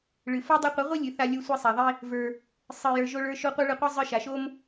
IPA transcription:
ɭ ɨ˨ f o˦ dˤ ɨ˧ qʷ ɨ˨˦ ʁʷ i˦ lʲ ɨ˨ θ a˧ lʲ o˧ sʷ i˧ sˤ a˨ ðˤ i˦ | v ə˞˧ | sˤ ɨ˨ j ə˞˧ ʒ o˧ ɭ ə˞˧ ʃ o˧ qʷ ə˞˦ ɭ ɨ˧ qʷ ɨ˦ zˤ ə˞˧ ʃ a˨ ʃ o˦ m

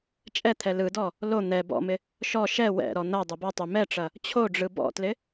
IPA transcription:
t͡ʃʼ ɛ t̪ʰ ɛ l ɯ d ɔ | l o n̪ ɛ b ɔ̰ m ɪ | ʃ ɔ ʃ ɛ w ɛ̰ ɾ ɔ n̪ ɐ dˤ ɐ b ɔ tˤ ø m ɛ ʈ͡ʂ ɐ | t͡ɕʰ o ɖ͡ʐ ɯ b ɔ̰ t l ɪ

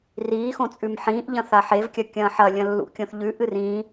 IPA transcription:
r iː x õ t͡sʼ ʉ m ħ ĩː ʔ ʎ ɐ̃ θ a ħ e v kʲ ɐ kʲ ɐ̃ː ħ ɐ lʲ ɐ̃ lː ṵ kʲ õ θ ʎ ʉ ʔ ɨ r ĩː

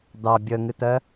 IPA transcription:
d̪ ɑ bʲ ə ŋ ɨ t̪ ɜ

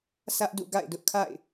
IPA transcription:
sʰ ä˦ ʔ d ṵ˦˨ ɡ a̰˦˨ ɪ̯ d ʊ˦ ʔ kʰ a̰˦˨ ɪ̯

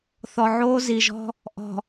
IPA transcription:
θ ɔ˨ ʕ oː˦ z i˨ ʒ ɔ̤˦ | ʔ ɔ̤˨

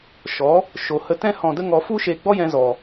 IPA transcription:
ʃ ɔ˨˦ | ʃ o˨ h ə˧ t ɛ̃˦ h ɔ̃˧ d ə˦ ŋ ɔ˧ f u˦ ʃ e˧ ɡ͡b ɔ˦ j ɛ̃˧ z ɔ˨

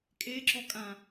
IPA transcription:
kʼ e ǁ ɔ kʼ ã

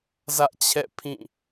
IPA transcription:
z ä˦ ʔ t͡ɕʰ ɛ̰˦˨ pʰ ĩ˦˨

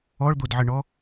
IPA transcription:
ɔ ɭ d̪ o d ʕ ə ɳ ɔ

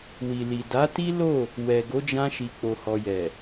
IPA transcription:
w i˨ l i˨ d a˨˦ t i˦ l o˦˨ | w ɛ˨ ɡ o˨˦ d͡ʒ ã˧ ʃ i˨ k͡p o˨ h ɔ˨ j ɛ˨

